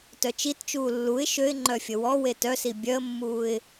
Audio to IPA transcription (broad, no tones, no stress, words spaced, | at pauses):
tœt͡ʃitt͡ʃuː lːuɪ̯ ʃøɪ̯ŋ͡ǃœ fʲəwɔwe tœsi bʲœə̯mːuːɪ̯